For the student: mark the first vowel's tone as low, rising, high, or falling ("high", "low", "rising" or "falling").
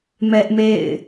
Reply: high